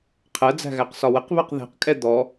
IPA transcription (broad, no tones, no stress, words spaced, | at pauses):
qʰɜd͡zæ̤ɣæqsɒ wəqβɜq ðæ̤qkʼɛ d̪ɔ